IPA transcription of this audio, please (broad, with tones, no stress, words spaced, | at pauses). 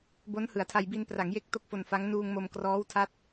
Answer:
bo˦˥nhɯ˩˦a̯tʰa˧j bi˧npra˩˦ŋje˦˥k̚ to˥˩k̚fo˧nfa˦˥ŋ nuː˧ŋ mo˧mkrɔː˦˥wtʰa˦˥t̚